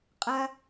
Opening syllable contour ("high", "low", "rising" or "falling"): high